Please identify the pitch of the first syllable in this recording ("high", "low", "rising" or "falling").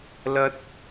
high